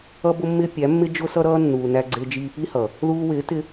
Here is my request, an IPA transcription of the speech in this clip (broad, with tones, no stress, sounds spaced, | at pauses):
ʌ˧ b ʊ˧ mː ɪː˧ pʲ æ˨˦ mː ɪ˦ d͡ʒ ʊ˦ s ʌ˦ ɾ ʌː˦ nː uː˨ n æ˧ ɡ͡ǀ ɪː˧ d͡ʒ iː˧ p i˦ h ʌ˨ | ð uː˧ w ɪː˨˦ t ɪ˧